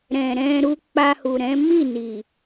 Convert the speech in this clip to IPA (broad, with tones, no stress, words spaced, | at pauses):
ɾɛ̃˨ɾɛ̃˧ɾu˧ k͡pa˧hu˨ɾɛ̃˨˦ mi˦˨ni˨